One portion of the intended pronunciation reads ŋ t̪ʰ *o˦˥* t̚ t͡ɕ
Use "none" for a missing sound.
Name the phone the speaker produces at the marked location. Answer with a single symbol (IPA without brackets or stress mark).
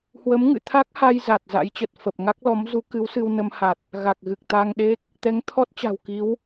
ɔ˦˥